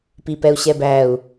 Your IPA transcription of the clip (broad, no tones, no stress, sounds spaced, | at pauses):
p i p ɛ u̯ ɕ ɛ b æ u̯